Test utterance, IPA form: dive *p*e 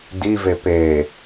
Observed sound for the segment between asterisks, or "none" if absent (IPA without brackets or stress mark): p